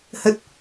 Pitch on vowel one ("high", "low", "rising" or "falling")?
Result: low